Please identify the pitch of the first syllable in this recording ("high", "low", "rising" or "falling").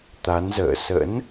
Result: rising